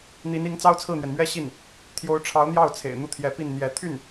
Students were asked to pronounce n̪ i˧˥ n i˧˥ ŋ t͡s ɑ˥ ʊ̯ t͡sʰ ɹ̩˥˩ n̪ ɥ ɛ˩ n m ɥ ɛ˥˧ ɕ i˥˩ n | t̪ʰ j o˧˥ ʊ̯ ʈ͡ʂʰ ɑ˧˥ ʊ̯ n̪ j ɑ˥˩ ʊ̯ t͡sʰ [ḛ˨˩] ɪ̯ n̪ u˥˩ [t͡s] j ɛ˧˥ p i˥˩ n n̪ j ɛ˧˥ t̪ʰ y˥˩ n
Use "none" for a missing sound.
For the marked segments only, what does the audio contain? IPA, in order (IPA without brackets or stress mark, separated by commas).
ḛ˨˩, t̪ʰ